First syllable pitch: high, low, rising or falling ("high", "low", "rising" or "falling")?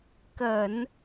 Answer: low